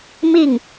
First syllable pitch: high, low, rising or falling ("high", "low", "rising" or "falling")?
falling